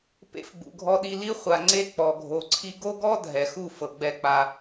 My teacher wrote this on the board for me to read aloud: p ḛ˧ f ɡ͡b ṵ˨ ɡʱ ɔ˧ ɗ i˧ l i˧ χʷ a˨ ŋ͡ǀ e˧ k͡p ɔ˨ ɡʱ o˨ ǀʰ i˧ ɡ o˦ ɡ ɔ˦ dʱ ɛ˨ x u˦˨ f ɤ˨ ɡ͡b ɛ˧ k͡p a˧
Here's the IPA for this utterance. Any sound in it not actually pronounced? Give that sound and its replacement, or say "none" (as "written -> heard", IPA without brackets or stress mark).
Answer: none